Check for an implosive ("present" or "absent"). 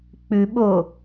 present